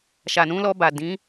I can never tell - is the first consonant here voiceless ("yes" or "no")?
yes